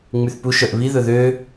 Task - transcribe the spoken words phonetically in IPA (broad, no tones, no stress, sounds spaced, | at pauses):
ŋ͡m y θ p u ʃ œ ʔ β i ð ɵ ð ø